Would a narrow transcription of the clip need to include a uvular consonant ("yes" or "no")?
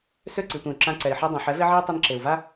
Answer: no